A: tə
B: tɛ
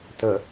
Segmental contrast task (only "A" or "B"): A